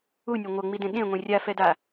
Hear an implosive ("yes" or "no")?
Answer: yes